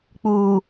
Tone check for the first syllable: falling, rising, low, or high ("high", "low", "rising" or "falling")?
low